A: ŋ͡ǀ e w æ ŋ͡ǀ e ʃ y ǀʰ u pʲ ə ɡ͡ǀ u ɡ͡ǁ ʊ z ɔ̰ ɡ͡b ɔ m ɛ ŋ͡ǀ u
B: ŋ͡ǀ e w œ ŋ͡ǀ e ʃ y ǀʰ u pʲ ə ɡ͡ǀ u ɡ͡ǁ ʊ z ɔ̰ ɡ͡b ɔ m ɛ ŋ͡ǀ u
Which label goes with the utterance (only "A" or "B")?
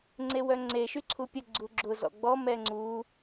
B